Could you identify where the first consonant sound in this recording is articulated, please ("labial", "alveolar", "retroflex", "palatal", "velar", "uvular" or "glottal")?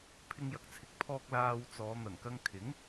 labial